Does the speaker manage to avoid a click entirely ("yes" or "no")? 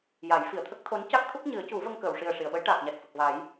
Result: yes